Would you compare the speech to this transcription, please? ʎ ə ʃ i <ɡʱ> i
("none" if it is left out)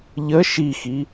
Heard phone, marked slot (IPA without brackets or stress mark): x